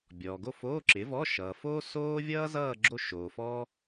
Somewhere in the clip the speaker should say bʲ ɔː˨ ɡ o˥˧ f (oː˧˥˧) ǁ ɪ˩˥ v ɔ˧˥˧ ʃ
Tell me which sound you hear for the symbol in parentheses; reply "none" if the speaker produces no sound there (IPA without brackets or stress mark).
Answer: oː˧˥˧